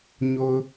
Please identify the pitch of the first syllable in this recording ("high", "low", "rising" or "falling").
low